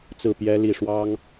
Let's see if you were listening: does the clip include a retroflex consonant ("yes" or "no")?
yes